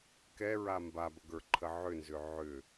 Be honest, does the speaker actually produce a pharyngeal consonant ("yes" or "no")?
yes